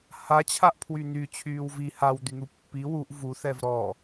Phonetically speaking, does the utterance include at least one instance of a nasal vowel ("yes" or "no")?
no